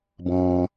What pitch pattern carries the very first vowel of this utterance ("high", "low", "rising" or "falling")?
low